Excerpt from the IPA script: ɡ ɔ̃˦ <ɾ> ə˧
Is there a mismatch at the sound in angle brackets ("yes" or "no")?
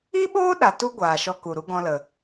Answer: yes